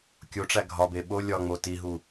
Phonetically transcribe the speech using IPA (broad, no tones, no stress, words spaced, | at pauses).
kʲoʈ͡ʂæ ɡʱɒbe ɓo lʲɒŋ͡mo tiɦu